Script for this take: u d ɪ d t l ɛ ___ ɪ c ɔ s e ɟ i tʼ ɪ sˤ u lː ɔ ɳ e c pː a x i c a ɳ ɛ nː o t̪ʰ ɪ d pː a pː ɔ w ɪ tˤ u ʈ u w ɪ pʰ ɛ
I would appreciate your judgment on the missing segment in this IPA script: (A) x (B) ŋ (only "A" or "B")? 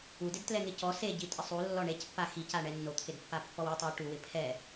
B